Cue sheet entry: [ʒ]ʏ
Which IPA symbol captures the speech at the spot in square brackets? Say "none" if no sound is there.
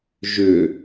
ʒ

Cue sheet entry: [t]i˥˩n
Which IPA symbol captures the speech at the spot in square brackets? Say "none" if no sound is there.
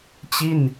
t͡ɕ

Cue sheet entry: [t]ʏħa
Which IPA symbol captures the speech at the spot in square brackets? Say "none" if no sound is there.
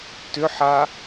t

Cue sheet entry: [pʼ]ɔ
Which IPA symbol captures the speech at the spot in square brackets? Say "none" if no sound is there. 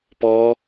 p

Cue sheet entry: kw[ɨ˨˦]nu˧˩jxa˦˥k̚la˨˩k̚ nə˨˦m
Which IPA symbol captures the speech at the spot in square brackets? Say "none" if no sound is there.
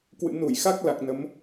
ɨ̰˧˨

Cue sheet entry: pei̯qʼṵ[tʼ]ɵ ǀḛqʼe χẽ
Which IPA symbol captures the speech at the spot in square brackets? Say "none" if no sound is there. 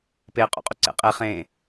qʼ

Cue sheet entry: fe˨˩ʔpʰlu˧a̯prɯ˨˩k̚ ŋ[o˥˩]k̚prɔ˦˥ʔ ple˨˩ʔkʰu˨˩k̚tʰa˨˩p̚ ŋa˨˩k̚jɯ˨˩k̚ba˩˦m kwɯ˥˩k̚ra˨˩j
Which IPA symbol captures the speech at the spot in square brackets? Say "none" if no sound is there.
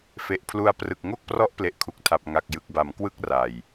o˥˩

